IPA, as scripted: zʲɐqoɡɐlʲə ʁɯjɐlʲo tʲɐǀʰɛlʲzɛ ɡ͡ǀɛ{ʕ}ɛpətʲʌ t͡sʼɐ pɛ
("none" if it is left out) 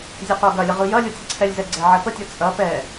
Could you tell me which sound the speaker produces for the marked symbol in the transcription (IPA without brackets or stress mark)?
ʕ